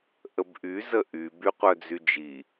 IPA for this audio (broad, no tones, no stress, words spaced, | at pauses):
ʔəbʔy zəʔy byqʷœd͡zyd͡ʒi